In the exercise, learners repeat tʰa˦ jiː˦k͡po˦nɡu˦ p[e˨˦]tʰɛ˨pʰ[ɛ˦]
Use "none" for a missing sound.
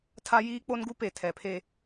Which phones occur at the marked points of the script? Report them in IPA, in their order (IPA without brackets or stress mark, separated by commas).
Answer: e˨, e˦